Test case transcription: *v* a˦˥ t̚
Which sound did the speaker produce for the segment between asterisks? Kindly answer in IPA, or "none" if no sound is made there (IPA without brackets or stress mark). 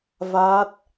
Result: v